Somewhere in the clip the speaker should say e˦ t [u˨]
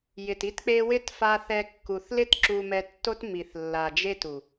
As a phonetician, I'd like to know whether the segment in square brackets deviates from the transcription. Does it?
no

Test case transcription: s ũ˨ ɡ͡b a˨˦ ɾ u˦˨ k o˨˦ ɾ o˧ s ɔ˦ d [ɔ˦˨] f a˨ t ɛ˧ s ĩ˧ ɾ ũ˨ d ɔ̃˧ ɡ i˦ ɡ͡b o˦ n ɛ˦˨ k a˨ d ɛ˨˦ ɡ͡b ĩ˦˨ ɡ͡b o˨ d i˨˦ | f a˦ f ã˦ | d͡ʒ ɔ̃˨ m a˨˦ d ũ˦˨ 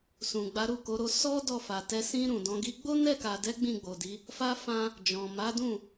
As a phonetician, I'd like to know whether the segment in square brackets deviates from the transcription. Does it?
no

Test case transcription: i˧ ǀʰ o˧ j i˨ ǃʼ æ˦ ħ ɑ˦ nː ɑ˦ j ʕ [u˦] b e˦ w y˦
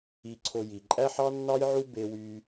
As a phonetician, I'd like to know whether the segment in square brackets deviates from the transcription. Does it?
no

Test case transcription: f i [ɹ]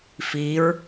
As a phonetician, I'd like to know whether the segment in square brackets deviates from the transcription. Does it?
no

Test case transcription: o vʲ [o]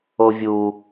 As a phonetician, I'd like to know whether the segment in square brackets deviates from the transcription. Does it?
yes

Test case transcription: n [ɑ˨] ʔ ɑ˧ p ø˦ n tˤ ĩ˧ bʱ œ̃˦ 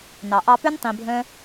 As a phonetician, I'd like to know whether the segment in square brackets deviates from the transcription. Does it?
no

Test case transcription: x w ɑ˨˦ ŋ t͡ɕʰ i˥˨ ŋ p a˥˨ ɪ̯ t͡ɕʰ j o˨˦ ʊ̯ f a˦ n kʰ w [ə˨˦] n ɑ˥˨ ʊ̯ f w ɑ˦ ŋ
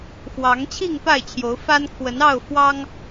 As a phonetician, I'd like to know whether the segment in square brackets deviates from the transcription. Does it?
no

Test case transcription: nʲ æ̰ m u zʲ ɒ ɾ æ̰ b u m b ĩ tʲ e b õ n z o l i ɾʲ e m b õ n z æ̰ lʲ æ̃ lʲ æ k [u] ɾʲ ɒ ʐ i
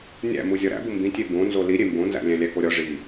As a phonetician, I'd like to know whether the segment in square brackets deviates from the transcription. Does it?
yes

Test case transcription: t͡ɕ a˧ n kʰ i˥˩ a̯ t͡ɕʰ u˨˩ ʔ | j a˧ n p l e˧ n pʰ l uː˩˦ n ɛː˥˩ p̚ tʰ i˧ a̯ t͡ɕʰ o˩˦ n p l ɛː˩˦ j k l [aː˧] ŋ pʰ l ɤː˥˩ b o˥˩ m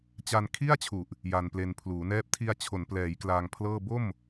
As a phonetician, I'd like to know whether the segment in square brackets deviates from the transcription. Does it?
no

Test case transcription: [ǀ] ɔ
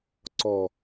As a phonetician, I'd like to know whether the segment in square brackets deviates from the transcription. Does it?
no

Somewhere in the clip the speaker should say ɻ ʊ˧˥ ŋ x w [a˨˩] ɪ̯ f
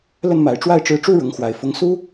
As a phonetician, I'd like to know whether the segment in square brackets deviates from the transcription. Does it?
no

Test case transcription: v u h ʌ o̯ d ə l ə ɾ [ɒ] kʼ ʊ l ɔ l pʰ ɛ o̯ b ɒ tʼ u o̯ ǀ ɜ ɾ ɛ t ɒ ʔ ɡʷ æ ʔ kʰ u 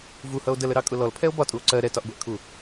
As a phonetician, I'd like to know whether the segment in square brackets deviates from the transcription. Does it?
yes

